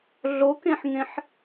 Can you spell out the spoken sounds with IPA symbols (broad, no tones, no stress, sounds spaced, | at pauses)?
ɮ o k ẽ ħ ŋ ẽ ħ